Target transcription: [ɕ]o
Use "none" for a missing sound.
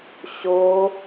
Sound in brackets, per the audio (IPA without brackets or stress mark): ɕ